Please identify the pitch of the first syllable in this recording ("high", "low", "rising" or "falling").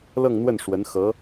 falling